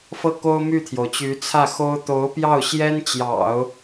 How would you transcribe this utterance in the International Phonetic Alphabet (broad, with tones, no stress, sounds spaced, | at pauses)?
f ɤ˥˩ k o˥ ʊ̯ m y˥˩ t̪ʰ j o˩ ʊ̯ t͡ɕ y˧˥ t͡sʰ ä˥˩ x o˥ ʊ̯ t̪ o˧˥ ʊ̯ p j ɑ˥˩ ʊ̯ ɕ j ɛ˥ n t͡ɕ j ɑ̰˨˩˦ ʊ̯